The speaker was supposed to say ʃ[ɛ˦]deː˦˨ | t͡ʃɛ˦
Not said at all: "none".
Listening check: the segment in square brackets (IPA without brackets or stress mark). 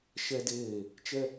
ɛ˦